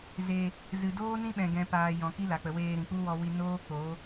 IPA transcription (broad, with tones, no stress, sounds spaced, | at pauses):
z e˨ | z ɨ˨ d oː˦ n ĩ˦ ɓ ɛ̃˨ ɡ ɛ̃˨ p aː˨ j ɔ̃˨ k i˦ l a˨ k͡p ə˨ w eː˧ ɾ ĩ˨ k͡p u˦ w ɔ˧ w i˧ n oː˦ k͡p o˨˦